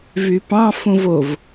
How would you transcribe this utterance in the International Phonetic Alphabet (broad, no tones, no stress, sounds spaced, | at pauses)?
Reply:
v y p ɑ̃ f ũ v o v